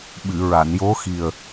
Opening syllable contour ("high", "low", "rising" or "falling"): low